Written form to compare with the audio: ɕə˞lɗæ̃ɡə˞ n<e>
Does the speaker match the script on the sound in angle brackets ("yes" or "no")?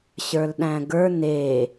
yes